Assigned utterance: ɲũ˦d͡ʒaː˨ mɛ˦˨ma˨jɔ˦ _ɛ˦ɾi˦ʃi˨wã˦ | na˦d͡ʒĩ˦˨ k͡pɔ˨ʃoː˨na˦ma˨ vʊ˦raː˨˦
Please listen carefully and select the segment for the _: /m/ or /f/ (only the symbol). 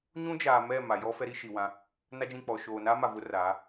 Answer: f